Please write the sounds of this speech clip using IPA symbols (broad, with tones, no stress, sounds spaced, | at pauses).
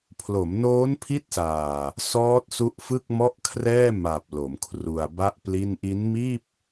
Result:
pʰ l o˩˦ m n oː˦˥ n pʰ i˦˥ t̚ s aː˨˩ | s ɔː˦˥ t̚ s u˦˥ ʔ f ɯ˥˩ k̚ m ɔ˥˩ ʔ kʰ r ɛː˥˩ m a˨˩ p̚ l o˩˦ m kʰ r u˧ a̯ b a˥˩ ʔ p l i˥˩ n ʔ i˦˥ n m iː˥˩ p̚